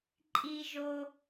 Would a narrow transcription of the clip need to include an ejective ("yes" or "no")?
yes